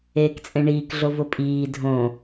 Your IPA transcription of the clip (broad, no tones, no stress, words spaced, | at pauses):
eːkt͡sʼẽɳiːk ɮovʊpʼiː dʱõː